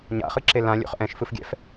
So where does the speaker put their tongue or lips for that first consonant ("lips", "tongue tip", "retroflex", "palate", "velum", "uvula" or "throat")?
palate